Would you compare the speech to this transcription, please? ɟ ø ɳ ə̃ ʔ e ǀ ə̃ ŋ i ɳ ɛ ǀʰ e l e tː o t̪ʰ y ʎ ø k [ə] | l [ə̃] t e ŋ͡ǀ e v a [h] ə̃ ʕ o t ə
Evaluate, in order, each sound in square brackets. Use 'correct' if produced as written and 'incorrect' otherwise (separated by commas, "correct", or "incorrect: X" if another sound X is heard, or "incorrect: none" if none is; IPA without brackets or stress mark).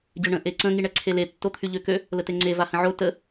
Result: incorrect: ø, incorrect: ə, correct